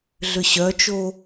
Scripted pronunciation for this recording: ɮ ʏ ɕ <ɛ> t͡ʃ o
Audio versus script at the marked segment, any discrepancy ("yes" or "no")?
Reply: yes